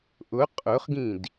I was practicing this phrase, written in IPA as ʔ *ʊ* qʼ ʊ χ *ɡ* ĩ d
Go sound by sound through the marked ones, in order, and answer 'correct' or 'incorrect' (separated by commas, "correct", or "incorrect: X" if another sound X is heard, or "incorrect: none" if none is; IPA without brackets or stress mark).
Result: correct, correct